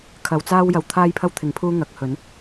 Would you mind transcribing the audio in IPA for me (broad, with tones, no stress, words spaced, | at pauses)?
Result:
kʰɐ˨˧wt͡saː˥w jɐ˨wt̪ʰaː˥jpʰɐ˥w t̪ʰɪ˨˥ŋ pʰuː˥ŋɐ˨˥k̚hɵ˨˥n